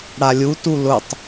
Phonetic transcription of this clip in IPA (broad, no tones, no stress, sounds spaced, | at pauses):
ɽ a lʲ u t u l ʊ tˤ